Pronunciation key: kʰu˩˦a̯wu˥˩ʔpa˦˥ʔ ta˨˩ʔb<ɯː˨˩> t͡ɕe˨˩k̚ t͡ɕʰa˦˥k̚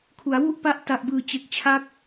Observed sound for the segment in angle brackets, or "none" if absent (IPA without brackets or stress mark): ɯː˨˩